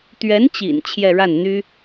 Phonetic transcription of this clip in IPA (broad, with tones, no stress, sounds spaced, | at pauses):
t̪ ɥ ɛ˧˥ n t͡ɕ ḭ˨˩ n t͡ɕʰ j ɛ˥˧ ɻ a˥˩ n n̪ y˥